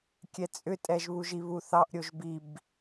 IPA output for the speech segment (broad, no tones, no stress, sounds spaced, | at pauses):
kʲ ɛ t͡sʼ ʏ tʼ ɛ ʒ β u ʒ i β u θ ɑ ʔ ɾʲ o ʒ b i b